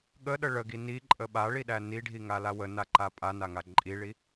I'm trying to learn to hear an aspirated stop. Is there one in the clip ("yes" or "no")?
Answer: no